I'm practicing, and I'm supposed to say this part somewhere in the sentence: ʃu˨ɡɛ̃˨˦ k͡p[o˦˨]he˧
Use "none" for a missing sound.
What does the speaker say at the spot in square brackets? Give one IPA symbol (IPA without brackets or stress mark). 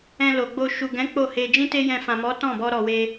o˦˨